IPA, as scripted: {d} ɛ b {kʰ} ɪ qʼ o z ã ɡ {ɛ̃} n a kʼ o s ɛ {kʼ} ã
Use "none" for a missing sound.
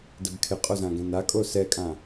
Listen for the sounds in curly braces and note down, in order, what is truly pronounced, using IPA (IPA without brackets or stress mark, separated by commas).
d, kʰ, ɛ̃, kʼ